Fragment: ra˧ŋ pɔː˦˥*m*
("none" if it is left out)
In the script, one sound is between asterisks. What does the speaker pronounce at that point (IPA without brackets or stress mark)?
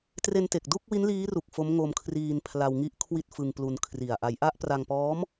m